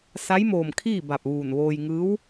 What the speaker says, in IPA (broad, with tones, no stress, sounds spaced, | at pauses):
s a˧˥ j m oː˧˩ m kʰ iː˥˨ b a˧˩ p̚ ʋ uː˧˩ n ʋ oː˧ j ŋ ɯː˧˥ w